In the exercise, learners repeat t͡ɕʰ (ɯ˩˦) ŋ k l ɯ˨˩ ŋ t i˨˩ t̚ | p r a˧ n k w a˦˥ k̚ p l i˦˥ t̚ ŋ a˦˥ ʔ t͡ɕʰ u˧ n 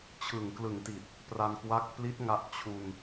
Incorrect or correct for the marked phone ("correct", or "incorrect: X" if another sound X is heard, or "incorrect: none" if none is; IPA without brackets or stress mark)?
incorrect: ɯ˨˩